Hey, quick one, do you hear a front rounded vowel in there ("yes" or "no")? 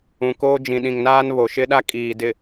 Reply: no